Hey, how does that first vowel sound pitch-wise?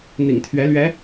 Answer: low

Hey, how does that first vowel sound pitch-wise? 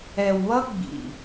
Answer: low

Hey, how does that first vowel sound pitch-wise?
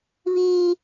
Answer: high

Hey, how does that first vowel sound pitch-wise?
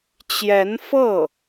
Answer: rising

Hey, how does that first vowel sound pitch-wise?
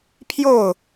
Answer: falling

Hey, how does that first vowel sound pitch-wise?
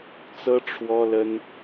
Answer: high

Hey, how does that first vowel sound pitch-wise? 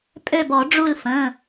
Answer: falling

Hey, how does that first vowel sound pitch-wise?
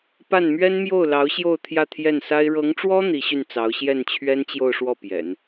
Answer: falling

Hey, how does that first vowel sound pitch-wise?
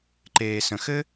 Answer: low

